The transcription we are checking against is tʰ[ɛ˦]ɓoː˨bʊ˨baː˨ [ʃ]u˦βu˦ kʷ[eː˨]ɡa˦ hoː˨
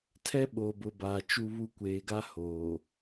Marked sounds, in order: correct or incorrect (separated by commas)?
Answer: correct, incorrect, correct